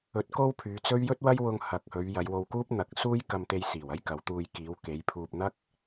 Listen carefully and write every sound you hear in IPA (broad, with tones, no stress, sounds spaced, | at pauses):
ɵ˨˥ t̚ k o˥ w pʰ yː˨˧ t͡s ɵ˥ ɥ j ɵ˥ t̚ w ɐ˥ j w ʊ˧ ŋ h ɐ˨ k̚ h ɵ˨˧ ɥ j ɐ˨˧ j w o˧ w k uː˥ p̚ n̪ ɐ˨˥ k̚ s uː˥ j k ɐ˧ m t̪ e˧ j s iː˨˩ w ɐ˥ j k ɐ˨˧ w t̪ uː˧ j k iː˨˧ w k e˨˧ j pʰ uː˧ p̚ n̪ ɐ˥ k̚